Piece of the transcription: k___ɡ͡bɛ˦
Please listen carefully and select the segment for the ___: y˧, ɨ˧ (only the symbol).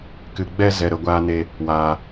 ɨ˧